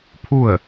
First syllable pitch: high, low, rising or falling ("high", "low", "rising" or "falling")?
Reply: falling